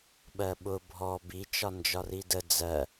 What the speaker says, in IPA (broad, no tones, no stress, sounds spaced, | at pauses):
ɓ ɜ ɓ ʊ bʱ ɔ b i t͡ʃ ɒ n d͡ʒ ɒ r i d ə d͡z ɜ